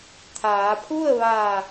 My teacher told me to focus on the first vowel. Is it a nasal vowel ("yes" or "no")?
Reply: no